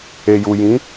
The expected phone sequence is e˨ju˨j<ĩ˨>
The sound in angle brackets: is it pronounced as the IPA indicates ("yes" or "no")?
no